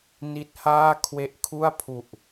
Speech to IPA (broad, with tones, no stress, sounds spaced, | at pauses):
n i˦˥ t̚ h aː˥˩ kʰ w e˦˥ ʔ kʰ u˥˩ a̯ pʰ u˨˩ ʔ